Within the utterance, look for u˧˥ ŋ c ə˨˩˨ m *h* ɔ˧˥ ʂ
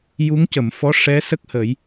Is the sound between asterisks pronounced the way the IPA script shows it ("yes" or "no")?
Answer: no